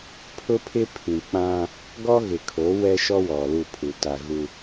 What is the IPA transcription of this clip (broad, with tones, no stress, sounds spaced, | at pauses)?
pʰ ʊ˦ pʰ ɪ˦ pʰ ĩ˨ k͡p ã˦ | ɡ ɔ˦ ɣ ɪ˨ kʰ o˨˦ w ɛ˦ ʃ ɔ˦ w ɔ˨ l u˦˨ pʰ u˨ t a˨ ɣ u˦